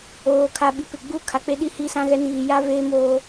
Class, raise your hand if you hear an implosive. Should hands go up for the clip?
yes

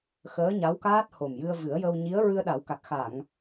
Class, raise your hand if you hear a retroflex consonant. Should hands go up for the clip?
no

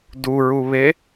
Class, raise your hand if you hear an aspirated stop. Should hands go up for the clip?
no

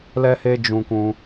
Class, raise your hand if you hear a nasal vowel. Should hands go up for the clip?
yes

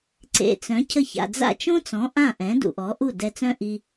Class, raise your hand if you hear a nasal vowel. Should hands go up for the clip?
yes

